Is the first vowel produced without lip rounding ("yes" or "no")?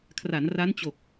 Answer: yes